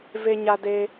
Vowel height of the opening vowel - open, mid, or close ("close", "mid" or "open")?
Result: mid